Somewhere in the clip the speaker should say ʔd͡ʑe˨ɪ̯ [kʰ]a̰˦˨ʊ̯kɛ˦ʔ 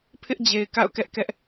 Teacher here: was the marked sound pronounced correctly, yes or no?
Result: no